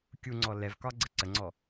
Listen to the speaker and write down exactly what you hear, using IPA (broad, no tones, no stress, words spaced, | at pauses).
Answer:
kʲuŋ͡ǀɔ lɛvkɒ ɡ͡ǀəǀəŋ͡ǀɔ